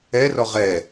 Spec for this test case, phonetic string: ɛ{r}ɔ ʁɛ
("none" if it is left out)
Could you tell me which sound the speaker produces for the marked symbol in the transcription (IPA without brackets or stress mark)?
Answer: r